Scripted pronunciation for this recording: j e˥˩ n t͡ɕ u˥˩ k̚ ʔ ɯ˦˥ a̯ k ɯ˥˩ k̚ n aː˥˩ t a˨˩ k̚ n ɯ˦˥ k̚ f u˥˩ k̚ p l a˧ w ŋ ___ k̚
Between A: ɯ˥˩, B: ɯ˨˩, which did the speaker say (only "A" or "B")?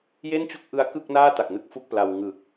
B